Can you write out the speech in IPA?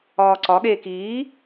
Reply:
ɒː ǀ ɒ ɠ eː k iː

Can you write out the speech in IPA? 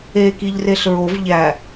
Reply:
eː k i ʎ r e ɬ ɹ o v ʎ æ

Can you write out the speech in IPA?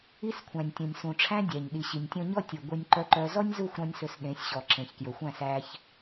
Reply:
i˦ s kʷʰ æ̃˨ nʲ tʲ ũ˨ nʲ s ũ˨ ʈ͡ʂʰ æ̃˦ dʲ æ˨ ɲ ɗ i˨ ɕ i˨ nʲ tʲ ɔ̃˦ ɲ ɔ˦ tʲ ɵ˨ ɡʷ e˧ nʲ ǃ œ˧ ǃ œ˧ z ɔ˦ nʲ z u˦˨ xʷ ɾ ɔ̃˦ nʲ s ɵ˧ s ɗ ẽ˨˦ sʲ ɕ ɔ˨ ǁ ẽ˨ ç k j ɵ˨ xʷ æ̃˦˨ s æ˧ ç

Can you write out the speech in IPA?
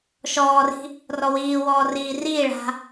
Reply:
ʃ ɔː r i̤ | r ɔ w iː w ɔː r iː r iː ɭ a̤

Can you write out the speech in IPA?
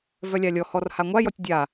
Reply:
v œ lʲ a lʲ ɔ h ɔ r h a ŋʷ a j ɔ tʲ dʲ a

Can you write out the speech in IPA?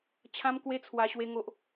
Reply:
t͡ɕʰ ã˦ m k w e˦ t͡sʰ w a˧ ɕ w e˦ ŋ o˦ ʔ

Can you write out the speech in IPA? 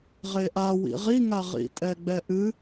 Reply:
ʁ e ʔ a w ḭ ʁ i ŋ a ʁ ḭ tʼ ɛ ɡ͡b ɛ ʔ ɨ

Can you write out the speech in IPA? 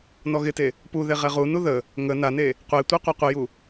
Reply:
n ɔ ɣ ɪ t e | p u ð e ʁ ɛ ʁ u n u ð ə | ŋ ə n a n e | qʷ e tʷ e qʷ a qʷ ɪ j u

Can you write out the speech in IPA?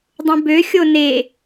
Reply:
dˤ ũ b ø xʲ o n e

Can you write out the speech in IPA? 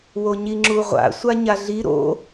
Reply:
w o ɲ i ŋ͡ǁ u ʁʷ a̰ sʷ a ɲ a ɮ i ɾ o̰

